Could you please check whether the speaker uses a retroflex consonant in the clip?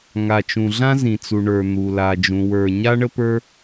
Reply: yes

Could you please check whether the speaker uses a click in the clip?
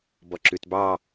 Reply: yes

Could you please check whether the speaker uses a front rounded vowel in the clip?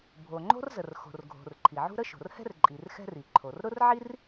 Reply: no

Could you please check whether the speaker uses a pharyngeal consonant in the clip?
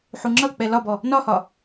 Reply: yes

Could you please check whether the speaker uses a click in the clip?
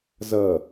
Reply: no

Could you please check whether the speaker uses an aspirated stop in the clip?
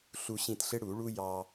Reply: no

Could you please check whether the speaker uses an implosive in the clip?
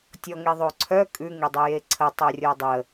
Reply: no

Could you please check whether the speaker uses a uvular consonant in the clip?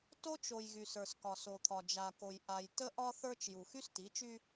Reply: no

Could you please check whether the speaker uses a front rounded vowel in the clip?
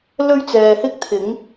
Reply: no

